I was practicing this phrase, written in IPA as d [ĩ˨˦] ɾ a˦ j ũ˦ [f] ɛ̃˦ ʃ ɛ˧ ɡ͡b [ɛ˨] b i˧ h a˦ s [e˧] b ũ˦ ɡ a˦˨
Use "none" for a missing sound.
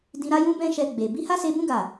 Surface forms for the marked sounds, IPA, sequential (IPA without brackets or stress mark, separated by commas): ĩ˧, b, e˨, e˧